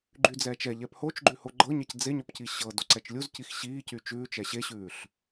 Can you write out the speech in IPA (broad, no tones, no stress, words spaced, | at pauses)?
ɡ͡ǃyd͡zɛːt͡ʃɛ ʎɛphot͡ʃɡ͡ǃʉ hoɡ͡ǃɤɲɛc d͡zeɲɔpci ɕɤ doǀɛt͡ʃlʲuz cixɕiː cyt͡ʃʉːt͡ʃ ɛɕeɕʉːɬ